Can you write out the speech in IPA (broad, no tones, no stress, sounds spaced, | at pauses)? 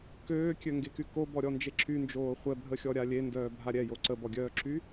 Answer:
k øː kʲ ø ŋ ɡ e k y k o b ɔ ɾʲ ɔ n d͡ʒ e ǁ y n d͡ʒ oː χʷ ɛ bʱ ə xʲ ɔ ɾʲ a lʲ e n d œː bʱ a ɾʲ ɛ j o ǀ ə b ɔ ɡʲ œː ǁ y